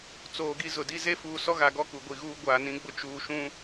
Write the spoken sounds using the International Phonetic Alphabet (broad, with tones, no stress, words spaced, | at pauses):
t͡soː˨ɡi˦zʊ˨di˦ ze˦fuː˨ sɔ˦ɣa˨ɡɔ˦ ku˨ɡʷi˨ɣuː˦ ɡʷaː˨nĩ˨˦ɡ͡bʊ˦ t͡ʃuː˨ʃũ˦